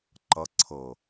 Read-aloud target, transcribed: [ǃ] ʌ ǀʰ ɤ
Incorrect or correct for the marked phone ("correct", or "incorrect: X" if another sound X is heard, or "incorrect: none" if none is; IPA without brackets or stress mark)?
correct